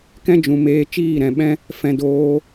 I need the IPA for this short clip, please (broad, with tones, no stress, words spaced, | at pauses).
kɛ̃˦d͡ʒũ˨meː˧ t͡ʃiː˦˨ɾɛ̃˨ɓɛ̃˦ | fɛ̃˧ doː˧